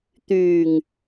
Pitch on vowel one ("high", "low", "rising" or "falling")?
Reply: low